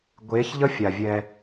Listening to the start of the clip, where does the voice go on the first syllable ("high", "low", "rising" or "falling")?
rising